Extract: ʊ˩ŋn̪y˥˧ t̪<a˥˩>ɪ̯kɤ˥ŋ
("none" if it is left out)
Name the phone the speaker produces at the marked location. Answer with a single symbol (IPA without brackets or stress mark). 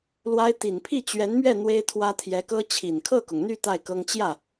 a˥˩